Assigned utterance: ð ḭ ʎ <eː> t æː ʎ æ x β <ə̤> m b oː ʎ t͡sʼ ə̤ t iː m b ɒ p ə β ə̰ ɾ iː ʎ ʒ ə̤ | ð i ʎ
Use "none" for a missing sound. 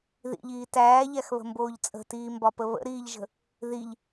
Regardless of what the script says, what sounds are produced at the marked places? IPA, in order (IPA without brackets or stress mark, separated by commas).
iː, ə̤